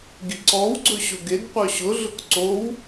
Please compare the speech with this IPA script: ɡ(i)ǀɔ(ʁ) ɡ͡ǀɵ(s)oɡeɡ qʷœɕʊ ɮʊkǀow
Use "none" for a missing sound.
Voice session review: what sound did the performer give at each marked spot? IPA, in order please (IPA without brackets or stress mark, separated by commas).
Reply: i, w, ɕ